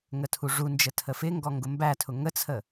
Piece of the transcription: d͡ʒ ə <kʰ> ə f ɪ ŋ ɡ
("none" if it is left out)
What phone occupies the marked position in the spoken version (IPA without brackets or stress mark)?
tʰ